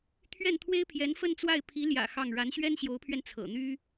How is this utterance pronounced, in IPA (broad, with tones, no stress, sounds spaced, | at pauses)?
t̪ʰ ɥ ɛ˥˩ n t̪ʰ w e˥ ɪ̯ pʰ j ɛ˧˥ n f ə˥˧ n t͡s w a˥˩ ɪ̯ pʰ i˧˥ l j ä̰˨˩ x ɑ˥˩ ŋ ɻ a˧˥ n ɕ ɥ ɛ˥ n ɕ j o˧˥ ʊ̯ pʰ ɥ ɛ˧ n t͡sʰ ɤ̰˨˩ n̪ y˥